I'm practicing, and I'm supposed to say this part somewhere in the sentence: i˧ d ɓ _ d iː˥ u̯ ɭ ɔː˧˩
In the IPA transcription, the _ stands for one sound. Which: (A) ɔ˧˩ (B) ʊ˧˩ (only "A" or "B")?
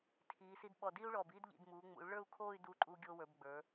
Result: A